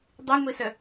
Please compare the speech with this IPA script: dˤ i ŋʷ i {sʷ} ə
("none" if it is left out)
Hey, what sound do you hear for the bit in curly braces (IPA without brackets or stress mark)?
s